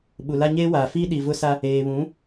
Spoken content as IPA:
ɓ u˨ l a˦ ɲ eː˦ w aː˨ f iː˦ ɗ i˨ v ʊ˦ s a˦ | eː˨ β ũ˨˦

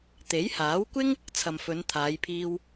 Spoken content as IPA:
t̪ e˨˥ j h aː˨˥ w kʷ ɪ˥ ŋ | t͡sʰ ɐ˨ m f ɵ˨˧ n t̪ʰ aː˨˧ j pʰ iː˧ w

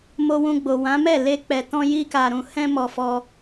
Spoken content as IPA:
m o˧ w ũ˧ ɡ͡b o˨ w ã˨˦ m ɛ˦˨ l e˧ k͡p ɛ˨ t ɔ̃˧ j i˧ k a˨ ɾ ũ˨ h ɛ̃˧ m ɔ˨ f ɔ˧

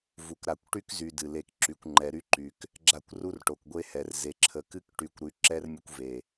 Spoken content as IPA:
v u˨ k ɾ a˨ kʷ ʈ y˦ k z y˨ d ɨ˨ l e˨ k ǁ y˨ kʷ ŋ͡ǃ ɛ˨ ɾ y˦ ǃ y˨ k | ɡ͡ǁ a˦˨ kʷ r u˦ r ʈ o˨ k ɡʷ e˦ h ɛ˨ r z e˨ ǁʰ ə˨ k ɨ˦ k ʈ y˨ kʷ ɾ y˨ ǁ ɛ˦ r mʲ ə˦ kʷ v e˨

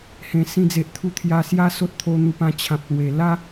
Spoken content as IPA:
h ẽ˨˩ s ĩ˧ d͡z e˨ ʔ t̪ʰ u˧ t̪ʰ j a˧ s j a˥˧ s o˦ t̚ t̪ʰ o˧ n̪ u˧ p ã˧ t͡ɕʰ ã˨ p̚ l w e˨˩ l a˦

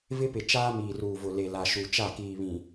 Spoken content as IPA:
v ɪ˦ p ɪ˨ t͡ʃ aː˦ m iː˨ r uː˨ v ʊ˨ l e˨ l a˨ ʃ u˨ t͡ʃ a˦˨ k iː˨ β ĩ˨

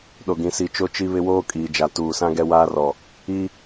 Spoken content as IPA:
ɗ o˦ ɡ ĩ˦ s i˦ t͡ʃ o˦ t͡ʃ i˦ β ɪ˦ w oː˦ kʼ iː˨ d͡ʒ a˨ t uː˨ s ã˦ ɡ ɛ˦ w aː˦ r ɔ˨ | i˦

